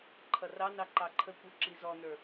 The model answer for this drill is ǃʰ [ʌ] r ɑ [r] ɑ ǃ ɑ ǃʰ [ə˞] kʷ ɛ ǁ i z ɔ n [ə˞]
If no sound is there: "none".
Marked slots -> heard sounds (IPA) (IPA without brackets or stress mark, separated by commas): ʌ, n, ə, ə˞